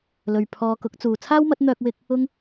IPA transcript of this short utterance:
l ɵ˨ ɥ pʰ ɔː˧ k ʊ˨˥ k̚ t͡s uː˨ t͡sʰ aː˥ w m ɐ˨˥ t̚ n̪ œː˧ k̚ w ɪ˧ k̚ | ʊ˥ ŋ

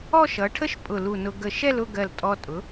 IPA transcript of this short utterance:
ɔ˥˧ ʃ ʌ˩˧ ʈʰ ə˥ ʃ pʼ ʊ˧˩ l u˧˩ n ʊ˧ ɡ ə˧˩ ʃ ɛ˥˧ l ʊ˥˧ ɡ ɜ˧˩ l tʼ ɔ˧ tʼ ʊ˩˧

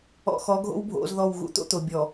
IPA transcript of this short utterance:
ɔ̰˨ x ɔ˨˦ ɡʱ o̰˦ w bʱ o̰˨˦ z ð ɔ˦˨ w ɣ ṵ˦ t̪ o̰˦ t̪ o˨ bʲ ɔ˨

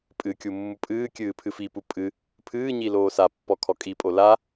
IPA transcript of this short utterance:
pʼ ɨ kʲ u mː u pʼ ɨː kʲ ɨː pʰ ɨ f i p u pʼ ɨ | pʰ ɨː ɲ i l oː s a pː ɔ kʰ ɔ kʼ i pʼ o l a

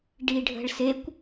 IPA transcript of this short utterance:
ɖ i ɖʱ ə̤ ɭ s e kʷ

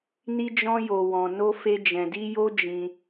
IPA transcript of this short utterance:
n i˦ d͡ʒ ɔ̃˦ j o˧ w ɔ̃˧ n o˦ f e˦ d͡ʒ ɛ̃˧ d i˦ j o˦ d͡ʒ ĩ˧

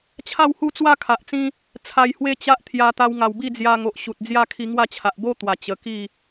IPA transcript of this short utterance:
t͡ɕʰ a˥˧ w h u˥˧ t͡s w a˦ kʰ a˨ ʔ t͡s ĩ˦ | t͡sʰ a˧ j h w e˦ t͡ɕ a˦ ʔ t̪ʰ j a˧ t̪ a˧ w ŋ a˨˩ w b i˥˧ d͡z j a˧ ŋ o˨ ʔ ɕ u˨ t̚ d͡z j a˦ kʰ i˧ ŋ w a˥˧ t͡ɕʰ a˨ ʔ b o˦ t̪ w a˨˩ t͡ɕ ə˨˩ k i˥˧

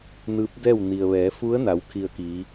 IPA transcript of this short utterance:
n ɯː˧˥ p̚ d ɛː˥˨ w n i˩ ə̯ ʋ ɛː˩˧ f u˧˥ ə̯ n a˩˧ w kʰ i˧˩ ə̯ k iː˩˧

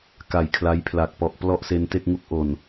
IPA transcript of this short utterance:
k a˨˩ j kʰ l a˦˥ j pʰ l a˨˩ k̚ p ɔ˨˩ ʔ p l ɔ˥˩ ʔ s e˧ n t e˥˩ k̚ ŋ u˦˥ k̚ ʔ o˨˩ n

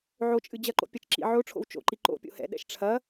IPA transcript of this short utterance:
ʕ o t͡ʃʼ ɨ d͡ʑ ɐ ǃ o̰ pʲ ɐ t͡ʃ ǁ ḭ ʕ o ʈ͡ʂʰ o̰ w t͡ʃ o̰ ǃ i ǃ o̰ pʲ o̰ h ɛ̰ ɗ ɛ̰ ʃ ʈ͡ʂʰ ɐ

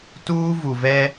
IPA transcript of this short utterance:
t uː˦ v u˨ v ɛ˦

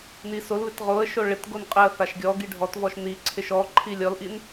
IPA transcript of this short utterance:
n i s o l β ɪ t ʁ o ə̯ ʃ o ɭ ɪ t ɡ o n qʼ ɪ ə̯ θ a ʃ ɡʲ ɔ ɡ i ɖʱ ɔ t v ɔ ʃ n i ǀʰ ɪ ʃ ɔ ǃʰ i lʲ ɔ l ʔ i n

